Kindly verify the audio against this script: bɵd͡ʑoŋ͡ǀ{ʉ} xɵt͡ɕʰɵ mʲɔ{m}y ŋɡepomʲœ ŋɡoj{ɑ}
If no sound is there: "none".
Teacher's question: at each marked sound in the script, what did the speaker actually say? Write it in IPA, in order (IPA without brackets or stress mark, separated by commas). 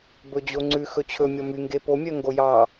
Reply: ʉ, m, ɑ